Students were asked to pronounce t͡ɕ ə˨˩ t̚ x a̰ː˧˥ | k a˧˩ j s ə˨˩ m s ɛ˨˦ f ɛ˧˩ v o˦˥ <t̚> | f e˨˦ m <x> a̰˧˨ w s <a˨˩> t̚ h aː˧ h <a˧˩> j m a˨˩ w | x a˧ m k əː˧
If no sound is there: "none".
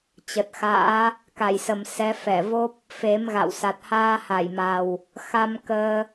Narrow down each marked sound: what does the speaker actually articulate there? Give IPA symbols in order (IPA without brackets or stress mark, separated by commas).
p̚, ɣ, a˨˩, a˧˩